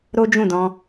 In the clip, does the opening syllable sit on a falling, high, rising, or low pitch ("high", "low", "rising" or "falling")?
high